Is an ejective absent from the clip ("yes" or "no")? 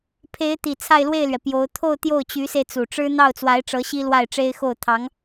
yes